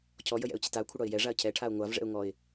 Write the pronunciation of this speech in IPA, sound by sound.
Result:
cʰ ɔ j ə j ɛ̰ ʊ̯ t͡ɕ ə t a ʊ̯ kʷʰ ə ɽ ɒ ɪ̯ j ɛ ʐ a ə̯ cʰ ɛ ʈʰ a ʊ̯ ŋʷ a v ʐ ɛ̰ ʊ̯ ŋ ɔ ɪ̯

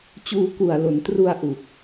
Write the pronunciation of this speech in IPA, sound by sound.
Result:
t͡ɕ uː˧ k u˨˩ a̯ l o˩˦ n t r u˧ a̯ ʔ u˨˩ k̚

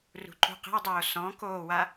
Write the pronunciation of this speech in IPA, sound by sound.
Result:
r ṳ ǃ ṳ q ə̤ w dˤ oː s ɔ̃ k oː w a

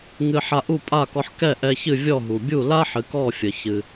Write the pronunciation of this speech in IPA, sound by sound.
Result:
ŋ ɨ˧ ħ a˧ ʔ u˥˩ pʼ a˥˩ k ɔ˧ ħ k ɛ˥˩ ʔ ɛ˧ ç ɨ˥˩ vʲ ɔ˥˩ ɦ u˩ bʲ u˥˩ l a˥ ħ ɨ˩˧ k ɔ˥˩ fʲ ə˩ ç ɨ˩

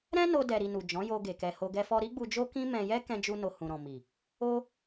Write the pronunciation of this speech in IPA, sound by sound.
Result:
ɾ ɛ̃˦ n o˧ d ɛ˨ ɾ i˨ n u˨ d͡ʒ ɔ̃˨˦ j o˧ ɡ e˨ k ɛ˨ h o˧ ɡ ɛ˧ f ɔ˧ ɾ i˦ ɡ͡b u˧ d͡ʒ o˦ k ĩ˦ m ɛ̃˧ j ɛ˦ k ɛ̃˧ d͡ʒ u˧ n o˧ h ũ˨ ɾ ɔ̃˨ m i˨ | o˦

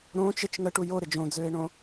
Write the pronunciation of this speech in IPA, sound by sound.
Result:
ɾ õː t͡ʃ ɪ t͡ʃ ŋ ə ʈ u j o ɾ ɪ d͡ʒ õ d͡z øː ɪ̯ ɳ õ

